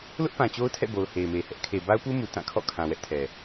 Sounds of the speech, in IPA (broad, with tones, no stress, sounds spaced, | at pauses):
l ʊ˦ ʔ p ã˨ t͡ɕ o˦ ʊ̯ tʰ ɛ̰˦˨ b o˨ ʊ̯ h e˨ ɪ̯ m e˨ h ɛ˦ ʔ kʰ e˨ b a˦ ʊ̯ p u˦ m u˨ t ã˦˨ kʰ ɔ̰˦˨ kʰ ã˨ w ɛ˦ ʔ tʰ ɛ˨